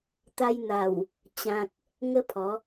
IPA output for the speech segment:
t̪ a˧ j n̪ a˨˩ w | t͡ɕ ã˨ k̚ | ŋ ə˦ pʰ ɔ˨˦

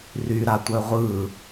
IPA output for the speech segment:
r y ɾ a tʷ œ ʁʷ ɯ

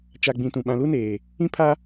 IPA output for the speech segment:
t͡ʃ a˨ ɡ͡b ĩ˨ t ũ˨ ɓ ã˨ l u˦ n eː˨ | ĩ˦ pʰ a˦

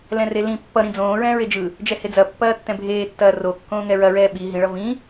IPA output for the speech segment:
l ɛ̃ r e l ĩ pː ʌ ɾ ĩ d͡z õː ɹ ɛ̃ː ɹ e d͡ʒ ɯ | d͡ʒ ɛ h e d͡z ɐ pː ɐː tː ɛ̃ bʱ eː tː ɐː r o kː õː ŋ ɛ ɹ ɐ ɹ ɛː ɓ i ɦ ĩ ɭ ʌ v ĩ

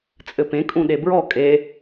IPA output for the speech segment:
t͡sʼ ɘ p ẽ kʼ ũ ɗ e b ɹ ɔ kʼ e

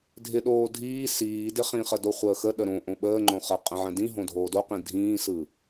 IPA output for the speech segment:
dʱ ɪ ɗ oː dʱ iː s iː d ɪ χ ĩ χ ə d o χʷ əː x ə ɗ ə ɾ õ ʔ õ ɓ əː ŋ͡ǃ õ χ ə qʼ ə̃ ʕ ə̃ d ĩ ɦ õ dʱ oː d o q ĩ dʱ ĩː s ɯ

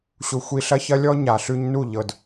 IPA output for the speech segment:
ɕ u˧ xʷ i˧ ɬ ɐ˦ ç ɐ˦ lʲ ɔ˦ ɲ a˨ ɬ ʉ˧ ɲ n u˦˨ ʎ ɤ˧ d

